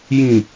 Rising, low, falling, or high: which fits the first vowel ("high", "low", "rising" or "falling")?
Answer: low